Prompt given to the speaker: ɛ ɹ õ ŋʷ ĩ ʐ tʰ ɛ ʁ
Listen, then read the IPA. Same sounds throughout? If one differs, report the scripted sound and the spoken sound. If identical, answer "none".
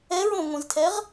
ʐ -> z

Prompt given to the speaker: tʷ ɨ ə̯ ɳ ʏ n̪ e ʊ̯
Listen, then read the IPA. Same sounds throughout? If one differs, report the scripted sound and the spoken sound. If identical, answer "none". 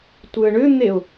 none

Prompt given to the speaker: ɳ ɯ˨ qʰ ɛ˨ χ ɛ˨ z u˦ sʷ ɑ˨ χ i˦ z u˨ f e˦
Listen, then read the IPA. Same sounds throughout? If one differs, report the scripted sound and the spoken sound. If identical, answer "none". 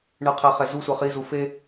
ɑ˨ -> ʌ˨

